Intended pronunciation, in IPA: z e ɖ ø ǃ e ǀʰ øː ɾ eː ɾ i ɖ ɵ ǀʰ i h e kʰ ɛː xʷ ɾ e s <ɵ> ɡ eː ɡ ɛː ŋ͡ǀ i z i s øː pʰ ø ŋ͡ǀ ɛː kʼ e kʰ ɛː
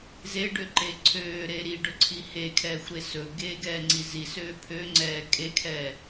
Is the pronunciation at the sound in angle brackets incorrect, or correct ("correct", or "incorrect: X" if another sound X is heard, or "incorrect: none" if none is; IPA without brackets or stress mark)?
correct